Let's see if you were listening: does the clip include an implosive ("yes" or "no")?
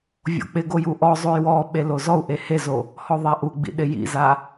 yes